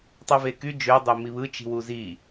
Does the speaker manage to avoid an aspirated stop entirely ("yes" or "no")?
yes